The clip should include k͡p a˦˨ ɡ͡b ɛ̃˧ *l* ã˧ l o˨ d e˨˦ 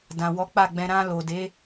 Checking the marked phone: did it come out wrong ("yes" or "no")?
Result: yes